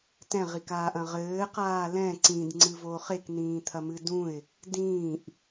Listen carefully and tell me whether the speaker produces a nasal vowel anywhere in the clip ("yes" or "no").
yes